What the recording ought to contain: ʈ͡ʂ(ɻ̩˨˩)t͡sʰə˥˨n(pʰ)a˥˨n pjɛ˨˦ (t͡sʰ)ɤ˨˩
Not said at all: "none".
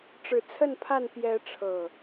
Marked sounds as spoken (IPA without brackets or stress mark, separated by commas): ɻ̩˨˩, pʰ, ʈ͡ʂʰ